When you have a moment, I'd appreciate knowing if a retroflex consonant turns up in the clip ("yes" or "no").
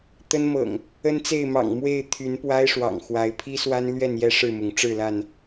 yes